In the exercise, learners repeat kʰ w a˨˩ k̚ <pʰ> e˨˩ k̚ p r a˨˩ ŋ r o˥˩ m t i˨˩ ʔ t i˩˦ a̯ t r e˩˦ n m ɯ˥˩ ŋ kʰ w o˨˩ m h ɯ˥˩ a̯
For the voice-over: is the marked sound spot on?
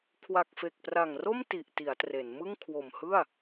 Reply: no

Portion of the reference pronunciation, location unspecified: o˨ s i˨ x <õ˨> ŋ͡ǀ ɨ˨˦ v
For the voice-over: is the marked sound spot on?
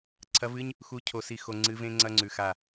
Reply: no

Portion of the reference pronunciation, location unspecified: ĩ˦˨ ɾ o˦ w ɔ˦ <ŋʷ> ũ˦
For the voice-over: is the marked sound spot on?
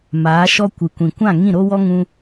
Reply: no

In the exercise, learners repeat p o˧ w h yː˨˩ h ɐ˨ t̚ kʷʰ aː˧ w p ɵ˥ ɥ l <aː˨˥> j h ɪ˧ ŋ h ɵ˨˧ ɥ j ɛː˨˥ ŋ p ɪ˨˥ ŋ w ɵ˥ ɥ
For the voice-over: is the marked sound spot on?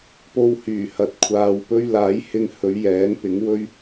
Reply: yes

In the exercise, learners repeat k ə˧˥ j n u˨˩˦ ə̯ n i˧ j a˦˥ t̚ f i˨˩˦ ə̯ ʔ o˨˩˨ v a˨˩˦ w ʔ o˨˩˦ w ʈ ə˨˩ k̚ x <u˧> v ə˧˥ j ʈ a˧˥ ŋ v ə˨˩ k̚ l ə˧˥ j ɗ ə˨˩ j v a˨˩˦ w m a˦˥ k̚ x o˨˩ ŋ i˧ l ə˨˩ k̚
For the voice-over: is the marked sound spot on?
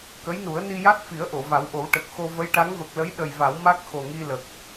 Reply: no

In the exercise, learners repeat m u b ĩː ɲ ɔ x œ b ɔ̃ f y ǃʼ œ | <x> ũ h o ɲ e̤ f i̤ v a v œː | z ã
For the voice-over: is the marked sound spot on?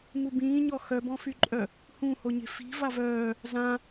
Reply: no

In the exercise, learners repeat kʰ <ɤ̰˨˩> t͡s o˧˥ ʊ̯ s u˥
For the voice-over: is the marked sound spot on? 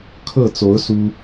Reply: no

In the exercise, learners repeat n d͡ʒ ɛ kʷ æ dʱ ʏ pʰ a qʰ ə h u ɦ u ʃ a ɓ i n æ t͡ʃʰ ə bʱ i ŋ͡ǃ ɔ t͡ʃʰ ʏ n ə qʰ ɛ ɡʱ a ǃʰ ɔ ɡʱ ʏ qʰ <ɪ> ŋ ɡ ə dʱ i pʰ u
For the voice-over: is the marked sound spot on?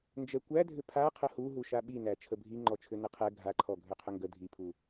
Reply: no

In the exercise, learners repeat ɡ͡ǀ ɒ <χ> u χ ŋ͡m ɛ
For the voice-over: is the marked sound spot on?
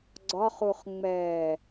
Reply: yes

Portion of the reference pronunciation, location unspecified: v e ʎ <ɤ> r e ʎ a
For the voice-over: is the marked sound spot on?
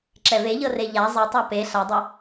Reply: yes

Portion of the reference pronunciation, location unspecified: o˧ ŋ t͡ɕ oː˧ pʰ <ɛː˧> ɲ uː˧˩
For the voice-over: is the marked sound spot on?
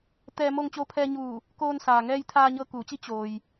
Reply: yes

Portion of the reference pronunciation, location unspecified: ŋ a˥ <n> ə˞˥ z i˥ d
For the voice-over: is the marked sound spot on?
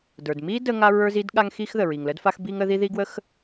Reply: no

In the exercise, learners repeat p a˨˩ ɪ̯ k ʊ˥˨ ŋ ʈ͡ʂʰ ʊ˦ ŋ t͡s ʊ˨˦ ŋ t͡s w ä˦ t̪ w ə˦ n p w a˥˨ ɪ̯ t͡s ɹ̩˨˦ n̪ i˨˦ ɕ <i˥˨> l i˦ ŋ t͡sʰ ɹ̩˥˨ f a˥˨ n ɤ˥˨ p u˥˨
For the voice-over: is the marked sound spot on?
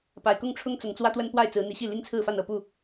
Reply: yes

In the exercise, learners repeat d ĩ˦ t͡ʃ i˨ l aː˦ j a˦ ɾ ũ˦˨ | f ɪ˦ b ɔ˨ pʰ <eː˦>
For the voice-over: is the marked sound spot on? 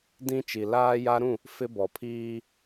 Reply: no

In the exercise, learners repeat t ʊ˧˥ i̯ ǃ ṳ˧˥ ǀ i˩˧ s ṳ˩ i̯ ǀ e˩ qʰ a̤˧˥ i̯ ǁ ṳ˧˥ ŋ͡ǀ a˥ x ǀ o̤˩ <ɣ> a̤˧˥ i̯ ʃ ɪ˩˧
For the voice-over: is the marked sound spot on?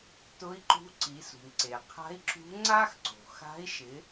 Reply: no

